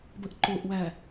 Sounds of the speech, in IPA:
b ə ʔ ǃ o ʔ w æ

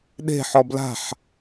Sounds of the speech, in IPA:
ɗ e̤ ħ ɔ b l a̤ ħ

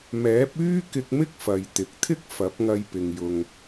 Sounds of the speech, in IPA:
m ɛː˨˥ p̚ yː˥ k ɪ˧ k̚ m ɪ˥ k̚ f ɐ˨ j t̪ ɪ˨ k̚ t̪ʰ ɪ˥ k̚ f ɐ˨˥ p̚ ŋ ɐ˧ j p ɪ˨ ŋ j ʊ˨ ŋ

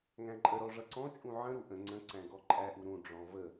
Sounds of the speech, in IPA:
ŋ æ̃ ǃʼ ə ɾ ɔ ʐ ʌ ǀ ɔ̃ t͡ʃʼ ũ ʕ ə̃ ɾ u ʔ ə̃ ŋ͡ǀ ə̃ ǀ æ̃ ɡ ɔ ǃʼ æ ʔ u ɾ ũ ɖ͡ʐ ɔ̃ v ə

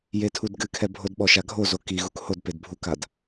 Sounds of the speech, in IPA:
j e tʰ u d ɡ ɨ kʰ ɛ bʱ o d ɓ ɔ ʃ a ɡʱ o z o k i ɣ u k h o d p e d bʱ u k a d

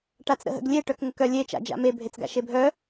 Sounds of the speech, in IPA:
ʈ a t͡s ɾ ə̰ ɦ ə̰ ɡ lʲ e ʈ œ k ŋ ə k œ lʲ e t͡ʃ a̰ d͡ʒ a̰ m e bʱ e t͡s ɡ a̰ ʃ e bʱ œ

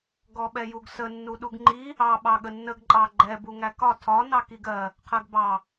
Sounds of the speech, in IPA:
ɡ ɔ ɓ ɛ j u ɡ s ə nː u ɗ u ɡ ŋ͡ǃ i | ɑ ɓ ɑ ɠ ə nː ə ɡ ǃʼ ɑ ɡ͡ǃ ɛ b u ŋ æ k ɒ tʰ ɒ n ɑ k i ɡ ɜ | qʰ ɜ ɡ b ɑ

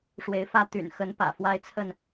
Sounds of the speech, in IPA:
ʂ w e˨˦ ɪ̯ f ä˥˨ t̪ y̰˨˩ n x ə˨˦ n p ä̰˨˩ f w a˦ ɪ̯ t͡sʰ ə˥˨ n

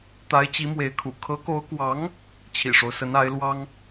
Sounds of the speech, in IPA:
t̪ a˧˥ ɪ̯ t͡ɕ i˧˥ m w e˧˥ ɪ̯ kʰ ṵ˨˩ kʰ ɤ˧˥ k o˧˥ ʊ̯ k w ɑ˧˥ ŋ | t͡ɕʰ ḭ˨˩ ʂ o˦ ʊ̯ s ə˧˥ n a˧˥ ɪ̯ l w ɑ˥ ŋ

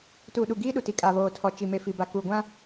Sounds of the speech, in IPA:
t uː˨ ɗ u˨ ɡ iː˦ ɗ u˨ t i˨ kʼ a˨ β oː˨ tʰ ɔ˨ t͡ʃ i˨ m e˨ f i˨ b a˨ k u˨ ɡʷ ã˦

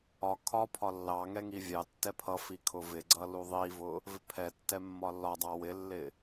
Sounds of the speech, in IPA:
ɒ kʰ ɒ pʰ ɒ lː ɑ ŋ ɛ ŋ i vʲ ɑ tː ɛ pʰ ʌ f i kʰ ʊ v ɪ ɡ͡ǀ ʌ l u ðˤ i v ʊ | v ɪ pʰ ɛ tː ɛ mː ɒ lː ɒ dˤ ɑ w ɪ lː ɪ

